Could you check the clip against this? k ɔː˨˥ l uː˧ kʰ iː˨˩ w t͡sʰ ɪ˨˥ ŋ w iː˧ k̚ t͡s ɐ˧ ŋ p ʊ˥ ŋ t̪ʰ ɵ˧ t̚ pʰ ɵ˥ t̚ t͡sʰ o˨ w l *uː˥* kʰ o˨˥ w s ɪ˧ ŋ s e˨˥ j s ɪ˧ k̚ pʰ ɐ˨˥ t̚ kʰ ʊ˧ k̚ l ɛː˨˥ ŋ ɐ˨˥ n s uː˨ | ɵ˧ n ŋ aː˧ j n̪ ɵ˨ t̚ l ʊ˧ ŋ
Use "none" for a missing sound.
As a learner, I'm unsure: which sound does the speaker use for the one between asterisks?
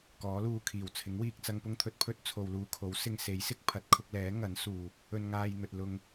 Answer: uː˧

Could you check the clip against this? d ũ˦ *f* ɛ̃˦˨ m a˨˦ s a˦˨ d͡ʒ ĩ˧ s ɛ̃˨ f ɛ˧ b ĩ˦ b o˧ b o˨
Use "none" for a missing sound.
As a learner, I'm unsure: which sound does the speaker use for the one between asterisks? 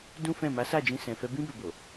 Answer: f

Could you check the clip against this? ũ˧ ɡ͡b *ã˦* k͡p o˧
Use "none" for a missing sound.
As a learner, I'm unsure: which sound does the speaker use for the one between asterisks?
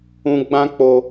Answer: ã˦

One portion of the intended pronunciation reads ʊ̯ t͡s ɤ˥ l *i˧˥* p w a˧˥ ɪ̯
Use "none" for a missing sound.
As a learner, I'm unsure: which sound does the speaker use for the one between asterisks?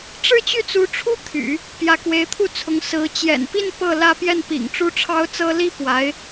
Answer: i˥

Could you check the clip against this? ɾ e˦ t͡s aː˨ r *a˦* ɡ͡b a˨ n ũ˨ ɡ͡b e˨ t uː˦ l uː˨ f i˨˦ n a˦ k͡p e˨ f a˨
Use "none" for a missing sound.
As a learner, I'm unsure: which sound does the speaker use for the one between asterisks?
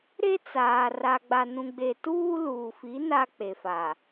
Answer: a˨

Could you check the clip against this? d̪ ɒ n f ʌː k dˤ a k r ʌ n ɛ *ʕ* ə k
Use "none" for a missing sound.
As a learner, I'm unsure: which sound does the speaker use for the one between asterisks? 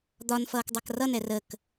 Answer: r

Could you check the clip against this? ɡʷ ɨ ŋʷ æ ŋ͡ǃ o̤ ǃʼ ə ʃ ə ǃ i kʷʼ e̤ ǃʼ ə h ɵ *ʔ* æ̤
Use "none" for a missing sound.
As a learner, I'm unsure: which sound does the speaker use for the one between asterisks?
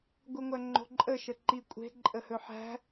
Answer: ħ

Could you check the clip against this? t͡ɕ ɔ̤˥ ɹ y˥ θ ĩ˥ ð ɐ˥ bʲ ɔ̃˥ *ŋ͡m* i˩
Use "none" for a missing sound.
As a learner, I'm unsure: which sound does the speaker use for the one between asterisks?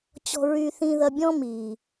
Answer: m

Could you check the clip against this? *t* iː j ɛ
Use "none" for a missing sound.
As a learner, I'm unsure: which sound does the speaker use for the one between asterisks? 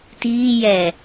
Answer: t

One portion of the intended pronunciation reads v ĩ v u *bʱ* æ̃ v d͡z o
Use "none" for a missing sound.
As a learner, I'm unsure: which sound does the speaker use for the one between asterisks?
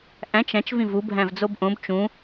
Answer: bʱ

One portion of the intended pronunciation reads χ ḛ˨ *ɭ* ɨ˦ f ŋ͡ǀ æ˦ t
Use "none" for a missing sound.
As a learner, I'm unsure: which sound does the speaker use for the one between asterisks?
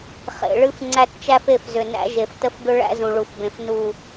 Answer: ɭ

